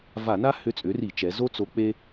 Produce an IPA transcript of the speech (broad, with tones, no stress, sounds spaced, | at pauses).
v a˧˩˧ n a˥ h ʏ˧˥ t͡sʼ ʏ˩˥ r i˧˩˧ t͡ʃ ɛ˩˧ z o˥ t͡s o˧˥ k͡p e˥